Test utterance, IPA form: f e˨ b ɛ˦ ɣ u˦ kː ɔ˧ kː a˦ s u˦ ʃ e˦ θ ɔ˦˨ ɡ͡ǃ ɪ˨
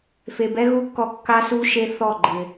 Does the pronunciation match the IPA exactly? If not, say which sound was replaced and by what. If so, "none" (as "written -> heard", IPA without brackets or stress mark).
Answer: none